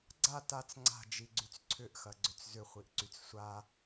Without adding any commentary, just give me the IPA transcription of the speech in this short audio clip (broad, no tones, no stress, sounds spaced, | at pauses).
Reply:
ɡ͡ǀ a t a t͡s ŋ͡ǀ a̤ d͡ʒ i ɡ͡ǀ y t͡s ǀʰ ʏ ʔ x ɐ ɡ͡ǀ ʏ t͡s z ʏ χʷ i ʔ ǀ y t͡s sʷ a